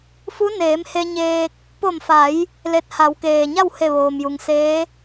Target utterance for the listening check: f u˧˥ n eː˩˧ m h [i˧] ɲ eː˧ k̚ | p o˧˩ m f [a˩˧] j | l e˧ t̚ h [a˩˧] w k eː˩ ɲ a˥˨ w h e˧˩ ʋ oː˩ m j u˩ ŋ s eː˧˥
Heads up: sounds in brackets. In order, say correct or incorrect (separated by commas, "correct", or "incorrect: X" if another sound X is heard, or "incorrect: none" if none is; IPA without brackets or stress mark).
incorrect: e˧, correct, correct